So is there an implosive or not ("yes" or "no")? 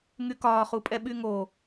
yes